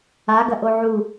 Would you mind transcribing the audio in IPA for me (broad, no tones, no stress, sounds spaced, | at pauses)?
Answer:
a ɡ ɐ ʔ o ʕ u